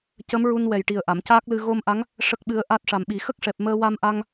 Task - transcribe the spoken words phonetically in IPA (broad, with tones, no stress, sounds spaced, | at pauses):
c ə˧˥ m ɹ u˧ n w ɛ˨˩ j ʈ i˨˩ ə̯ ʔ a˨˩˨ m c aː˦˥ k̚ l ɨ˧ ɣ o˧ m ʔ a˧˥ ŋ | ʂ ə˦˥ k̚ ɓ ɨ˧˥ ə̯ ʔ a˦˥ t̚ ʂ a˨˩ m ɓ i˨˩˦ x ə˦˥ k̚ ʂ ɛ˨˩ p̚ m əː˧ w a˧ m ʔ a˧ ŋ